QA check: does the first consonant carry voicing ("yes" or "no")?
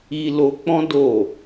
yes